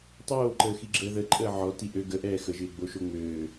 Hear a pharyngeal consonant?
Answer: yes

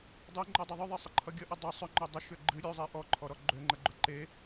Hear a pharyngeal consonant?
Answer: no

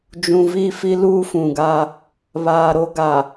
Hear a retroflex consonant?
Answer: no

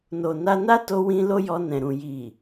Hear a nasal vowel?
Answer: yes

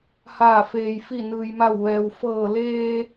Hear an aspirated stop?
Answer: no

